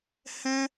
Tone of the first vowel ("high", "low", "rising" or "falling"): high